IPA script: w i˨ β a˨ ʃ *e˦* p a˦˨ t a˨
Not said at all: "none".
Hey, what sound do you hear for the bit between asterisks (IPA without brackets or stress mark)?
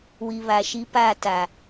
i˦